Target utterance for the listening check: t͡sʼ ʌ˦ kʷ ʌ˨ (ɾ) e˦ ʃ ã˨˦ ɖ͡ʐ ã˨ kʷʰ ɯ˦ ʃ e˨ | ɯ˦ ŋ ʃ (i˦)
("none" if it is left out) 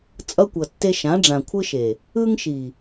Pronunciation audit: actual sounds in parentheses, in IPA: tː, i˨

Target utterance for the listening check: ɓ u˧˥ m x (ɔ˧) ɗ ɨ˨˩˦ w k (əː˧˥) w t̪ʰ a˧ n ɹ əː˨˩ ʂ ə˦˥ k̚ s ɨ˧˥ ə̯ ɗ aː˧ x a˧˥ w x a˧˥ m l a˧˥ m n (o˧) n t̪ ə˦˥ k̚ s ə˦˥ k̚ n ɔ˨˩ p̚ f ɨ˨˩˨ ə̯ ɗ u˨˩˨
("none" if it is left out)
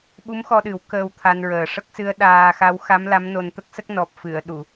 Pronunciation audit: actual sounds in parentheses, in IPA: ɔ˧, əː˧, o˧

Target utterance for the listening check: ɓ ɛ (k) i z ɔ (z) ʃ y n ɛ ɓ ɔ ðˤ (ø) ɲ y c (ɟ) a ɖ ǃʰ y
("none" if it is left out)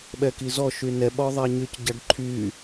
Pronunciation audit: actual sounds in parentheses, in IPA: k, none, ɛ, ɟ

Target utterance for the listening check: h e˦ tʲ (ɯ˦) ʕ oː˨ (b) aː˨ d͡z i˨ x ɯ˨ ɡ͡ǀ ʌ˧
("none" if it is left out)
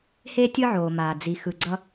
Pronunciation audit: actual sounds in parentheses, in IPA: ɯ˦, m

